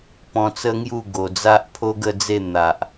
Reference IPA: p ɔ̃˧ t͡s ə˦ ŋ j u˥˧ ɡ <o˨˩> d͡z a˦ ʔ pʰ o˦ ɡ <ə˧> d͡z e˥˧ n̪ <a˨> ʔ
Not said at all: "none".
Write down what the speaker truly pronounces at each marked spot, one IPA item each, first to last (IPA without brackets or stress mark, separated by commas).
o˨˩, ə˥˧, a˨